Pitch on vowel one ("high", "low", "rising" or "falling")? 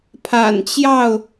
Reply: low